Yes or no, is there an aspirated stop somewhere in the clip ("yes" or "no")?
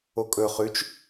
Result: no